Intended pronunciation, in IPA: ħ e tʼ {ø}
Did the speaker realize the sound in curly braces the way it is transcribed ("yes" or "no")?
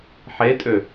yes